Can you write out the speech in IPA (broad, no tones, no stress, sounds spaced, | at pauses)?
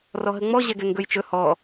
r ɔ ɦ ə ŋ͡m ɔ ʑ ɛ ɡ ɛ ŋ ɡ ɵ j t͡ʃ ɵ h ɔ